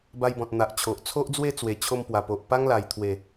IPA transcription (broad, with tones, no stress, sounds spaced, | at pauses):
b a˧ j b ɔ̃˨ t̚ n̪ a˨ ʔ t͡ɕʰ o˨ ʔ t͡sʰ o˦ ʔ d͡z w e˥˧ t͡s w e˨˩ t͡ɕʰ o˧ m p w a˨˩ p o˨ ʔ p a˦ ŋ l a˨˩ j t̪ʰ w e˨˩